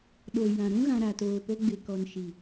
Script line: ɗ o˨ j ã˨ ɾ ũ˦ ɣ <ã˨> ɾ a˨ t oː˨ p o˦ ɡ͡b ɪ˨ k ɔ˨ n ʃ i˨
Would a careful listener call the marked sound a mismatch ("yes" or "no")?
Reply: no